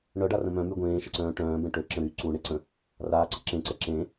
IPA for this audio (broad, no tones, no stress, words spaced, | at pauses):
ɳœɖarə̃ mœ̃my ɡʷẽːʃəǀœ̃ː ʈœ̃ːbɛ̃ ʈøǁə̃ ɾy ǀuɳeǀə̃ | raːǀə ǁẽǀɛ ǁẽ